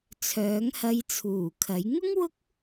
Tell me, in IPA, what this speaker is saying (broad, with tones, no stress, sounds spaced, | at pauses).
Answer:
t͡sʰ œː˨˥ ŋ h ɐ˧ j t͡sʰ uː˨˩ kʰ ɐ˨˥ j ŋ ʊ˥ ŋ w ʊ˥ k̚